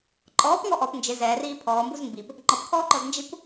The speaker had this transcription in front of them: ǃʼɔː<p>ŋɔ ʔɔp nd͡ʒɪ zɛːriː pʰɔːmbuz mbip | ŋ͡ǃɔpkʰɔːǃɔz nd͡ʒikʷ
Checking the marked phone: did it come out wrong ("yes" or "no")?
no